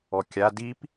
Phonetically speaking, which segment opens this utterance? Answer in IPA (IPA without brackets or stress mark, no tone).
ɔ